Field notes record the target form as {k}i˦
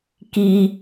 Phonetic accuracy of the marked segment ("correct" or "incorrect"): correct